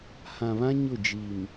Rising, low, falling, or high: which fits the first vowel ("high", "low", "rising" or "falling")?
low